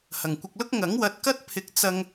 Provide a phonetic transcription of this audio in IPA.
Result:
h ɐ˨˩ ŋ kʷ ɪ˧ k̚ l ʊ˥ k̚ ŋ ɐ˨˥ ŋ w ɐ˨ t̚ k ɐ˥ t̚ pʰ ɪ˨ k̚ t͡s ɐ˧ ŋ

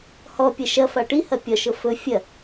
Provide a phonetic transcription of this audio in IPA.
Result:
h ɔ pʲ ɐ ʃ ɐ f a ʈ i h ɐ pʲ ɒ ʃ ɤ f ɵ fʲ ɐ

